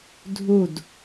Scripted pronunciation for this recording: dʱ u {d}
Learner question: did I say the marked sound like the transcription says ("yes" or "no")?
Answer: yes